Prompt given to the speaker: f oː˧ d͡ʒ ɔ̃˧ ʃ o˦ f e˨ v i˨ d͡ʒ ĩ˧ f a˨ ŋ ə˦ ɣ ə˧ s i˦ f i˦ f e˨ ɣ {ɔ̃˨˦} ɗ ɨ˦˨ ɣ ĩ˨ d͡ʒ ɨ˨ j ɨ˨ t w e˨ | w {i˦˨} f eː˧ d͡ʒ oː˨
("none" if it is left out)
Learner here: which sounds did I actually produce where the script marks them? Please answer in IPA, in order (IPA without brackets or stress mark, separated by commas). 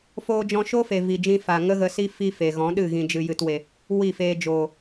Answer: ɔ̃˨˦, i˦˨